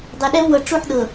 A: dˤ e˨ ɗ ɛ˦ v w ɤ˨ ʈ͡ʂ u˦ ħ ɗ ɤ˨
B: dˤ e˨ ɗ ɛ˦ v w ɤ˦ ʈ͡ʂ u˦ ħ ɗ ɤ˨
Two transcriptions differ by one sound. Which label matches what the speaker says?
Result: A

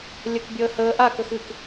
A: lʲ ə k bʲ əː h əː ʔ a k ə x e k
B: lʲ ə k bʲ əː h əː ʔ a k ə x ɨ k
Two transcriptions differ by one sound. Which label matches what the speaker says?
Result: B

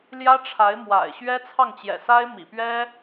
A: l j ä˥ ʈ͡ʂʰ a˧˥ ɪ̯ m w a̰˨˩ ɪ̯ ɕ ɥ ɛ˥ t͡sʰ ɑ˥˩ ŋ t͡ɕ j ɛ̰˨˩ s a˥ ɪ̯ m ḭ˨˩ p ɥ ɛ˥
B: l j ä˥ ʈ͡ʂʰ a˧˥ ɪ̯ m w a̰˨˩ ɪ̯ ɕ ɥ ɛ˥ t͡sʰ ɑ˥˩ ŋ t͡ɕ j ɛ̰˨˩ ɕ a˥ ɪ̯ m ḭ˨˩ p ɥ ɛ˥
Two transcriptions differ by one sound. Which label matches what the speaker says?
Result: A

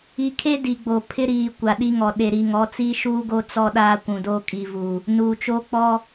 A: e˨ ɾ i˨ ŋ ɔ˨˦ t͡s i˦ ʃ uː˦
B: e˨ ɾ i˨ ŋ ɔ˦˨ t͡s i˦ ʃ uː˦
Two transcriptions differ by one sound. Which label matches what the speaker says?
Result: A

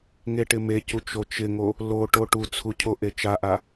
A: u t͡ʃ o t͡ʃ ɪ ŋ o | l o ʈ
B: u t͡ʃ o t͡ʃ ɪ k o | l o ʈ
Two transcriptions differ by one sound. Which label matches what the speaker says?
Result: A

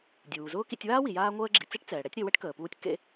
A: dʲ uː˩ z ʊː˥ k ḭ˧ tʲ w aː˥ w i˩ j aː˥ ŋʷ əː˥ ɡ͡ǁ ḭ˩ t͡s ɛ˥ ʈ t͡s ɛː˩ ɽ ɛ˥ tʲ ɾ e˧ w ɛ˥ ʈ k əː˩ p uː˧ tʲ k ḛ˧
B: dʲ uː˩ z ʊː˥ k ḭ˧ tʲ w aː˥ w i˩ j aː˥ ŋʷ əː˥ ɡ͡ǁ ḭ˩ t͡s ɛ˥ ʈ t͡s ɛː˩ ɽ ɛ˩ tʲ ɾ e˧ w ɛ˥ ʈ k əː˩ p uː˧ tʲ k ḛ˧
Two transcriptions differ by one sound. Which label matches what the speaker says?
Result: A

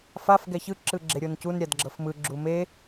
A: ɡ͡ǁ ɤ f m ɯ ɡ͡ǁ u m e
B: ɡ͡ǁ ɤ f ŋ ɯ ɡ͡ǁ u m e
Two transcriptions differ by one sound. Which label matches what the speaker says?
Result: A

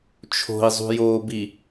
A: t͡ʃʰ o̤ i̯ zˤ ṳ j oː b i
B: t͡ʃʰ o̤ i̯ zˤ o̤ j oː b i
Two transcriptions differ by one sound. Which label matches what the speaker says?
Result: A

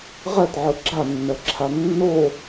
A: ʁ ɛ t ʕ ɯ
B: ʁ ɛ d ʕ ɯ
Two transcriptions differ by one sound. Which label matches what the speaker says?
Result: A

